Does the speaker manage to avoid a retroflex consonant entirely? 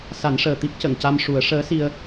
no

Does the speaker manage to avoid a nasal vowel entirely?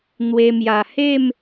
yes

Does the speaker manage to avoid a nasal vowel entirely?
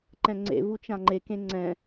no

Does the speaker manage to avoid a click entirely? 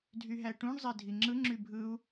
no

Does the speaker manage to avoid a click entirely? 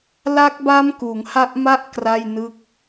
yes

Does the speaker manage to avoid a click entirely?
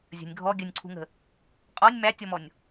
no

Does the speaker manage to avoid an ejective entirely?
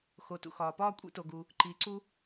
no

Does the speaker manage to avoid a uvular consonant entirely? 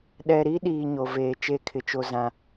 yes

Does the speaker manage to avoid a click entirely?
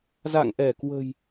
yes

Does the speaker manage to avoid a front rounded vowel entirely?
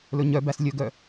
no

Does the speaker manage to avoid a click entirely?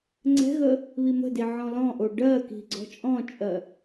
no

